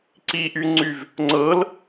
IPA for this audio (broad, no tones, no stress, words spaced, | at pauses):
ǀiʔyŋ͡ǀyv | ŋ͡ǀɤl